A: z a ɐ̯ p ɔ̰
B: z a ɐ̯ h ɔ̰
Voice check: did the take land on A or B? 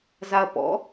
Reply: A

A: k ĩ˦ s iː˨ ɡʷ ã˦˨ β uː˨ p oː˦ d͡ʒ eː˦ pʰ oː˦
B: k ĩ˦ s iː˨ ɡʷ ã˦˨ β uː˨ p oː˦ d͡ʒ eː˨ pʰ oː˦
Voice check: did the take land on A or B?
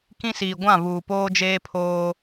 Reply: A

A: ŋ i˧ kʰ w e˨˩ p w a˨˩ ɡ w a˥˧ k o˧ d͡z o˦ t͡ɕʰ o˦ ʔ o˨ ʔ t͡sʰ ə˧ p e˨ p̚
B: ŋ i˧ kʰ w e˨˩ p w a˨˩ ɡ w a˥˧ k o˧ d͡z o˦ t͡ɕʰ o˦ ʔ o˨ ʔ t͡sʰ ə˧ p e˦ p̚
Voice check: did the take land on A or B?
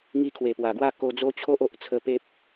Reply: B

